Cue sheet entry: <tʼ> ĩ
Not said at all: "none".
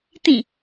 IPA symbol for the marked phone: t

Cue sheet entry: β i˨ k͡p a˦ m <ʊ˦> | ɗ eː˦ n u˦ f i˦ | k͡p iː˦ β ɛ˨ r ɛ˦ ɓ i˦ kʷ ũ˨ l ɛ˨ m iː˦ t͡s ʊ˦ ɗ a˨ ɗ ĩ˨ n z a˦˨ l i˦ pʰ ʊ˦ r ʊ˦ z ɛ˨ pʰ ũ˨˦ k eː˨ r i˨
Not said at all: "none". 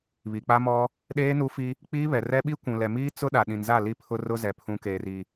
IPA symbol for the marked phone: ɔ˦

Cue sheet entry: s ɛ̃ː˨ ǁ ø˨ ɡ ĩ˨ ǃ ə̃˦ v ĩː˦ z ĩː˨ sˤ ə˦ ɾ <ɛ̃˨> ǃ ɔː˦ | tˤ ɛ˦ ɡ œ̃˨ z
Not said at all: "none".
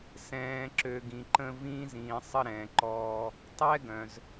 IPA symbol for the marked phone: ɛ̃˨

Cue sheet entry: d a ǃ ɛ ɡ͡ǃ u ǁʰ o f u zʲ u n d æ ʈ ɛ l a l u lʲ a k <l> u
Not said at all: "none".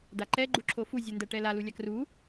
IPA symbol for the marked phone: r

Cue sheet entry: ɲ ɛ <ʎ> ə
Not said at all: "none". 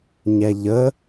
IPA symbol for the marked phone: ʎ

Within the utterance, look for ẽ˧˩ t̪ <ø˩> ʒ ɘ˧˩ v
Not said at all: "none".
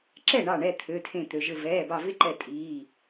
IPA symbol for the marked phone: ø˩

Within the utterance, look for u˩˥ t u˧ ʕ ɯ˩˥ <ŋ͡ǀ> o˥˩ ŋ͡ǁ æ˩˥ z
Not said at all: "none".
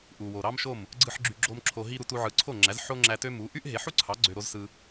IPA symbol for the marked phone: ǀʰ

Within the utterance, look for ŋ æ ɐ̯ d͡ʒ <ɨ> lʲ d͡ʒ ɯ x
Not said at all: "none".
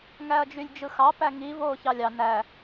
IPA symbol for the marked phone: y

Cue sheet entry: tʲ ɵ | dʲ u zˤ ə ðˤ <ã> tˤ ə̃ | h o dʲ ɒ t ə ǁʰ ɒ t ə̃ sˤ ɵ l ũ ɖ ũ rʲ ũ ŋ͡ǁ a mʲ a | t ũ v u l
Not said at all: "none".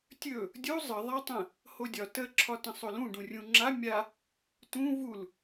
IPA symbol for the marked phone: a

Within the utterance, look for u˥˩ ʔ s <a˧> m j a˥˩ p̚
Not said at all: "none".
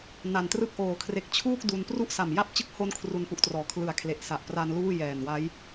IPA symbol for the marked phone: a˨˩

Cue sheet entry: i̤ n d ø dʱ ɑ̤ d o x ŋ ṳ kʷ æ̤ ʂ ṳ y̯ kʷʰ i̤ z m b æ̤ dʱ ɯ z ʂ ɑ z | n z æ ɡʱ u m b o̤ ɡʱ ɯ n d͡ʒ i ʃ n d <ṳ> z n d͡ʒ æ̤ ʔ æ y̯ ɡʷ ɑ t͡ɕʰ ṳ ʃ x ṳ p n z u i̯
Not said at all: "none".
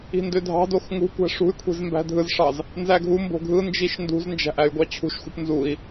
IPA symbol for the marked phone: ṳ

